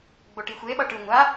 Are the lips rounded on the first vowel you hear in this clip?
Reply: yes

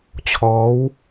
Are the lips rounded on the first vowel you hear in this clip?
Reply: yes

